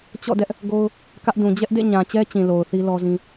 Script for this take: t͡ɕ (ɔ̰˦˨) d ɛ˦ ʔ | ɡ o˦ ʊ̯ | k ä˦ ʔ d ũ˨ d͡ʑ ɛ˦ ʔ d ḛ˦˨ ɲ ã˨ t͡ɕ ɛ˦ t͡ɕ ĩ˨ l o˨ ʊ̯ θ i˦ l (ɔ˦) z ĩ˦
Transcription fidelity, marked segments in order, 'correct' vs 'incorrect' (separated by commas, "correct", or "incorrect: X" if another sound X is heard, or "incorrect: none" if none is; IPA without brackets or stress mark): correct, correct